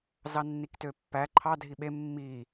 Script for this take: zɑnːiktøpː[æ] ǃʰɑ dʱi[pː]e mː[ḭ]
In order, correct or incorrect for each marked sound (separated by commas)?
correct, incorrect, incorrect